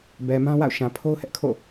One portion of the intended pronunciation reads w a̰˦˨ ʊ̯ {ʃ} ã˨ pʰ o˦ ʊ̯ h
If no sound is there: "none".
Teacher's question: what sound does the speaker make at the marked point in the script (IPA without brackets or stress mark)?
ʃ